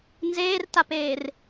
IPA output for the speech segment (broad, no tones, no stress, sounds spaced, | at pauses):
n z eː r t a p eː r